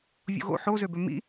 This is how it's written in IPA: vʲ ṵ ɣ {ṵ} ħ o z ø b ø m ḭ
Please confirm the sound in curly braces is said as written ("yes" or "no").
no